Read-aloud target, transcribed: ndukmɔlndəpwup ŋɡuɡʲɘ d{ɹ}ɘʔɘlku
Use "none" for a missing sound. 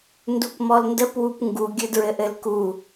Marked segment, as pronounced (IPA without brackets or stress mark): ɹ